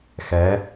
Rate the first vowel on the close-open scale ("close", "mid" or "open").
mid